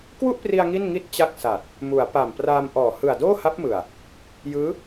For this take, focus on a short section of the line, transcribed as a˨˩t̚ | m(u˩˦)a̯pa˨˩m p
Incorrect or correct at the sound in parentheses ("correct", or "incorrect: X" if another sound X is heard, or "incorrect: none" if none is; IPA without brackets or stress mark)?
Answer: correct